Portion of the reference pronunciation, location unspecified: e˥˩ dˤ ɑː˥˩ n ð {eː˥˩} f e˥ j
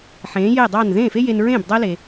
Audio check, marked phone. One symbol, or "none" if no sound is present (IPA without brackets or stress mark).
ẽː˥˩